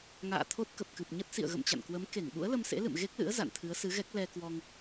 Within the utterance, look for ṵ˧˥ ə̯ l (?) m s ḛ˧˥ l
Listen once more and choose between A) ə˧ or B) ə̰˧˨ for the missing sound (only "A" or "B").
A